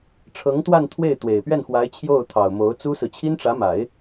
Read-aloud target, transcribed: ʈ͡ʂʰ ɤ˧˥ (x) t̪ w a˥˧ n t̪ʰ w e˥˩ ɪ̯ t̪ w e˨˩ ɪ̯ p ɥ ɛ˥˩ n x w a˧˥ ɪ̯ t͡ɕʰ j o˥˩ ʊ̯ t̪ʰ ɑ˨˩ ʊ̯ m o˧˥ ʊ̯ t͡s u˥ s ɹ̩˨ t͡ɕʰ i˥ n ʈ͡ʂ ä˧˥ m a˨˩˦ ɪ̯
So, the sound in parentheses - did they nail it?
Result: no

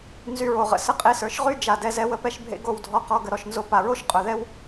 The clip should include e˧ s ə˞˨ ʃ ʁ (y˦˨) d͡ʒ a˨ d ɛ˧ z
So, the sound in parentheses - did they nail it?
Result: no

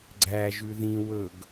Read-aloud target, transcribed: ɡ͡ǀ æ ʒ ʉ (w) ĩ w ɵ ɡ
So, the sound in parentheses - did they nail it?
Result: no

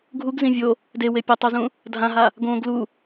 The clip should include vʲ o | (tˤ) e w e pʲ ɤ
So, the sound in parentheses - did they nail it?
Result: no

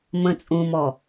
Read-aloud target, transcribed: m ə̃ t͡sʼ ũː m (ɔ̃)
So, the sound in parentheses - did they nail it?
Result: no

